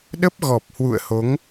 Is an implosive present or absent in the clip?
present